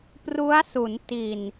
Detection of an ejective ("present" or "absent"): absent